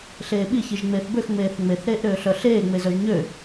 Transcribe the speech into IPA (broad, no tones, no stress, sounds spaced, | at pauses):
ɬ eː ɓ i ç i ʒ ŋ͡m eː θ b ø x ŋ͡m eː θ ŋ͡m e θ ɾ eː ʔ ɾ øː ɬ œ ɬ eː ŋ͡m e z œ ʒ ɲ ø